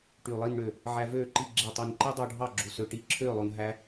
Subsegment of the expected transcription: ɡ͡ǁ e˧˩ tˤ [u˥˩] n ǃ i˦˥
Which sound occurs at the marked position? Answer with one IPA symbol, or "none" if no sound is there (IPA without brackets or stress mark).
u˧˩